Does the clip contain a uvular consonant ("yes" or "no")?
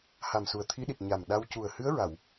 no